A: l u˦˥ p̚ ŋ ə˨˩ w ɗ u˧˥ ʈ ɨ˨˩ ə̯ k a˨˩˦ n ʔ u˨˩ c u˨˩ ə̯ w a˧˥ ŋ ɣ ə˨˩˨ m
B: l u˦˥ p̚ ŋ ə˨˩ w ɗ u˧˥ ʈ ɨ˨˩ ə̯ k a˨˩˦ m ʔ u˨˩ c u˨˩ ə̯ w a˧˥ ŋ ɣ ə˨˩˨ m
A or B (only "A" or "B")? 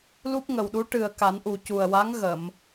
A